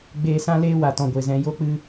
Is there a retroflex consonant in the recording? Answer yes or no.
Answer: no